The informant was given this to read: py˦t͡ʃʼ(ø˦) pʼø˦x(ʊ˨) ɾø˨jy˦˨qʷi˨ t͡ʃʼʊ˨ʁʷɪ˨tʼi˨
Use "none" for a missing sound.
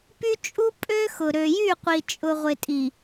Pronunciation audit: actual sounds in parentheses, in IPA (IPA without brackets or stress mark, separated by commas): u˦, ʊ˨